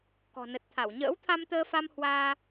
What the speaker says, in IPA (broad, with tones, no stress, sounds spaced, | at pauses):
k ɔ̤˨˩ n ə˨˩ t̚ t̪ʰ a˧˩ w ɲ ə̰ː˧˥ w t̪ʰ a˧ m t̪ əː˧ f a˧ m h w aː˧